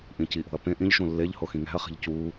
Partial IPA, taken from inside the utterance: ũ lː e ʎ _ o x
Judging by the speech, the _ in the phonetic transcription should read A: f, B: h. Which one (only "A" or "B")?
B